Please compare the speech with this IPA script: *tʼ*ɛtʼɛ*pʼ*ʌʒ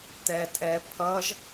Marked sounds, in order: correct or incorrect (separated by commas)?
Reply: incorrect, incorrect